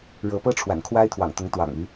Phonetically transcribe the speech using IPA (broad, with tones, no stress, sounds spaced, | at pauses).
ɻ ɤ˨˦ p ɤ˦ ʈ͡ʂʰ w a̰˨˩ n kʰ w a˦ ɪ̯ t̪ʰ w ɑ̰˨˩ ŋ t̪ ʊ˨˦ ŋ t̪ w ɑ̰˨˩ ŋ y˨˦